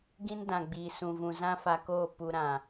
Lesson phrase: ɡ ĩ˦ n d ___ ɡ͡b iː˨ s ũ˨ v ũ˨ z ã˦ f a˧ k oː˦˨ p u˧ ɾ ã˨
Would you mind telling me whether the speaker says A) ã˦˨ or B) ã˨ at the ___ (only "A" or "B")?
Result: B